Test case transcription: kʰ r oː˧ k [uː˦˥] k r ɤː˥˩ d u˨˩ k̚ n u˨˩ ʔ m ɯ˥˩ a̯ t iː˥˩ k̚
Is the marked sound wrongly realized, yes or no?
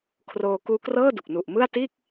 no